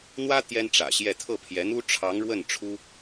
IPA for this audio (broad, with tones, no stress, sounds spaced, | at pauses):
n̪ w ä˥ t̪ j ɛ˥ n ʈ͡ʂ ä̰˨˩ ɕ j ɛ˥˧ t̪ʰ ɤ˥˩ pʰ j ɛ˧˥ n̪ u˥ ʈ͡ʂʰ ɑ˧˥ ŋ ɻ w ə˥˩ n ʈ͡ʂʰ u˥